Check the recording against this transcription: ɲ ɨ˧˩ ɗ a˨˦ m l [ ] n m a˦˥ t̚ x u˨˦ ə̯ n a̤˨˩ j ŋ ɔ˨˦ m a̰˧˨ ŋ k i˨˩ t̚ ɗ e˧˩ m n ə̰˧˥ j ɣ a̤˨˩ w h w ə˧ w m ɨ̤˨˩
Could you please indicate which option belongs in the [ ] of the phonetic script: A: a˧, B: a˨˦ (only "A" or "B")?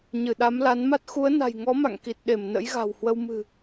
B